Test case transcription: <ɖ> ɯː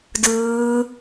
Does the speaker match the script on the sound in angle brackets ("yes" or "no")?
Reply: no